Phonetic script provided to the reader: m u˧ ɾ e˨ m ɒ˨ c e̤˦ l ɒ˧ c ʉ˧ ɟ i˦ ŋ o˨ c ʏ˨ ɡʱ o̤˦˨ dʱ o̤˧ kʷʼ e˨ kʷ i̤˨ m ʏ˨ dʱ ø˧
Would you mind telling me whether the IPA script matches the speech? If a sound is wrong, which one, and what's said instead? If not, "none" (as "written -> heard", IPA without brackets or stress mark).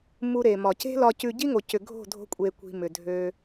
none